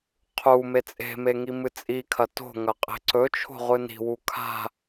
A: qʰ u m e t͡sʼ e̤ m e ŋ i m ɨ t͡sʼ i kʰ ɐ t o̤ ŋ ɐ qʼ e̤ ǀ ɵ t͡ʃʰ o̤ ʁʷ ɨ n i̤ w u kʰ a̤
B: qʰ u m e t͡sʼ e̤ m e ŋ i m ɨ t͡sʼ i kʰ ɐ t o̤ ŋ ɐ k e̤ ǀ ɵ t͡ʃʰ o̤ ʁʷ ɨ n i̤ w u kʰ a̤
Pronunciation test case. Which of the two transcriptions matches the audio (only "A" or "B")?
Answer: A